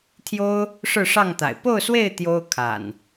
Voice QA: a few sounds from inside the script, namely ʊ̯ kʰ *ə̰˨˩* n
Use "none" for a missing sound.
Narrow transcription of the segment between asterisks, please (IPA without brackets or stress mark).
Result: a̰˨˩